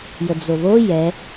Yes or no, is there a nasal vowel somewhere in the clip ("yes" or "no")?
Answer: no